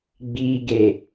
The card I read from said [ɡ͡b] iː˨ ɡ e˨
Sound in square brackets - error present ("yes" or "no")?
no